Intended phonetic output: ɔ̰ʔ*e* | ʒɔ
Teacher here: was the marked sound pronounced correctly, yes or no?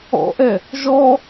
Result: no